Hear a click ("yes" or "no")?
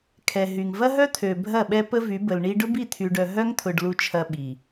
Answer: no